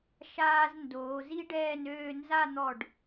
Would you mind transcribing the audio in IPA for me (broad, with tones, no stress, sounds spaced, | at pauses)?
ʃ aː˧ z n d oː˩˧ z i˥ ɖ ɛː˥˧ n øː˥˧ n z a˥˧ n̪ ɔ˧˩ ɖ